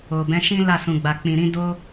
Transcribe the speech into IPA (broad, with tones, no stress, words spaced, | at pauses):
o˨bɛ̃˨˦ʃĩ˦ la˦˨sũ˨ɡ͡ba˨k͡pĩ˨ ɾĩ˧ do˦